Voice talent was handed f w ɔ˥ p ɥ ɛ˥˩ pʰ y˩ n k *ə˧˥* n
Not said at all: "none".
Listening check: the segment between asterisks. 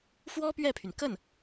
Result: ə˥˩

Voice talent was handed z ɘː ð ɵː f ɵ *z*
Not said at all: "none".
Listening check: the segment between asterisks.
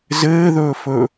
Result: none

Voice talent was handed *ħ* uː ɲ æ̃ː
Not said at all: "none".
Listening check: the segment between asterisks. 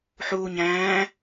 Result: ħ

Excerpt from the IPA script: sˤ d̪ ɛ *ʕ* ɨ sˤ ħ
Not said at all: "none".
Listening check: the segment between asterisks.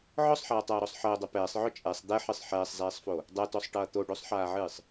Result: ħ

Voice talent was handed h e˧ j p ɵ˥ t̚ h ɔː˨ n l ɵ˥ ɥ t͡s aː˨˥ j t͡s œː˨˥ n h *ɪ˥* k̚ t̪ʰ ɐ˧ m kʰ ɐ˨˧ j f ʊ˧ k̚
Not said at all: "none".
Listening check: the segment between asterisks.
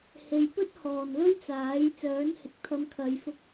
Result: ɪ˨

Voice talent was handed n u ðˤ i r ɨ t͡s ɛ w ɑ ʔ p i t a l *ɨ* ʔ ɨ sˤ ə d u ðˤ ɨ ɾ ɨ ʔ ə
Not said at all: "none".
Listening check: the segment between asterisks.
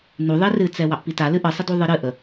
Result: ɨ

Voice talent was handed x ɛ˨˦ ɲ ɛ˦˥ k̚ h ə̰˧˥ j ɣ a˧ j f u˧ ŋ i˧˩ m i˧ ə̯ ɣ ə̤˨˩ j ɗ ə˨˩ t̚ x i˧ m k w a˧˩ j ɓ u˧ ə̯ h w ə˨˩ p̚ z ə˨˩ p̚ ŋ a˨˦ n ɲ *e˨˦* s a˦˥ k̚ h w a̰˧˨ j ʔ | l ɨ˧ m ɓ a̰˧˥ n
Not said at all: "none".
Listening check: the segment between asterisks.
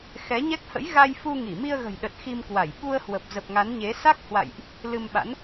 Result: e˨˦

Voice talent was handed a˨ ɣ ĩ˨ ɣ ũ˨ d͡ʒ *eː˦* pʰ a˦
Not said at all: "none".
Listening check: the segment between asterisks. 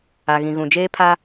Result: eː˦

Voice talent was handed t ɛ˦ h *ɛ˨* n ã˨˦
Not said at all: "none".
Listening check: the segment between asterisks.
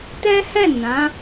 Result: ɛ˦˨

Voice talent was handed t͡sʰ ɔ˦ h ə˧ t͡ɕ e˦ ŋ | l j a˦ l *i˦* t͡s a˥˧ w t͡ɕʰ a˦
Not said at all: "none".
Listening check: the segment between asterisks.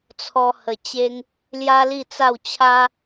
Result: i˥˧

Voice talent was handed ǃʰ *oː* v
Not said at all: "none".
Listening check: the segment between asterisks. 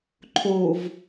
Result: oː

